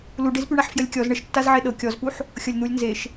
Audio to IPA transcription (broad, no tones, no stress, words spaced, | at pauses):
luɖezpyɳaħ fjəlʲkʲɔz ɳəʃtːaz ʕeɗɤ kʲɔzpuħ | xʲɤlʲn̪ulʲ nzeʃ